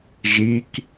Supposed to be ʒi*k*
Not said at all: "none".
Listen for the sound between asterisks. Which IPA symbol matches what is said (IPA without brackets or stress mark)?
k